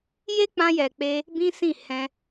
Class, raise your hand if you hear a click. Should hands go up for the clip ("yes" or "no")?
no